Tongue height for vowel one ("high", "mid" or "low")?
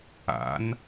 low